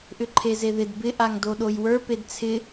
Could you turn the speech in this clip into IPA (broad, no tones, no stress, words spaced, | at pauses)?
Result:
ʔʏǃʰezeðɪd bɪ ʔaŋdoɗojwə˞ pedt͡sʰɪ